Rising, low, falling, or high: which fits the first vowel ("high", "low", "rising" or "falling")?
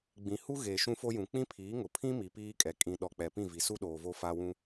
low